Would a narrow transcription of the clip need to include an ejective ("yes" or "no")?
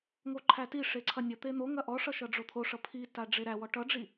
no